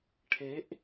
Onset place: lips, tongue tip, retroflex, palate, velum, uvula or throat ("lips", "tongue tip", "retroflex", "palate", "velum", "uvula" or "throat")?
retroflex